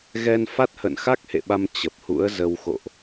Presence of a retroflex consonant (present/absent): absent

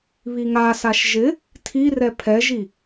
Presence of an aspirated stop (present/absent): present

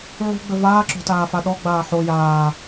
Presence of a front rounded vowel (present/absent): absent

